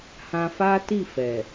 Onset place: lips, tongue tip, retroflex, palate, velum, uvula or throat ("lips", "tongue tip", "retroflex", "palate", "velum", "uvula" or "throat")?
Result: throat